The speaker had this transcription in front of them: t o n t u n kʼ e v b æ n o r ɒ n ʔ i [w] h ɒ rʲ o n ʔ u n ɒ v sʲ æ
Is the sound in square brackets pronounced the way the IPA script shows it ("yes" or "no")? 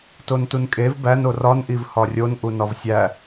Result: no